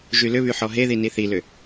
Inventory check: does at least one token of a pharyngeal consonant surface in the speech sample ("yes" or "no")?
yes